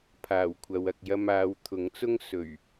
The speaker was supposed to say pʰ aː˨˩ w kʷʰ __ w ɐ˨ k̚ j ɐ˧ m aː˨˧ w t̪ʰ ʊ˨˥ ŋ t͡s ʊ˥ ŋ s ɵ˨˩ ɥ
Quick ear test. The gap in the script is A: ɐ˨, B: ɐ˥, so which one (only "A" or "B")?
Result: A